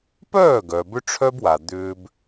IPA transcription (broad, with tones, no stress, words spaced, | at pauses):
pœː˦˨ ɡœ˨bʏ˦ʈ͡ʂʰœ˦bwa˨ d̪ʏː˦b